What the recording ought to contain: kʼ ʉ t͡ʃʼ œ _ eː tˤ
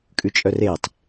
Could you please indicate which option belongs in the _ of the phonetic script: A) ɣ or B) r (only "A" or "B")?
B